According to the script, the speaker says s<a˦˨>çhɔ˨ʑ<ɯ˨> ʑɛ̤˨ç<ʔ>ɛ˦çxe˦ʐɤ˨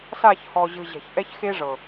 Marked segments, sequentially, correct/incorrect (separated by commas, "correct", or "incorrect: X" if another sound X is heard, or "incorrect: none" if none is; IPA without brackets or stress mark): correct, correct, correct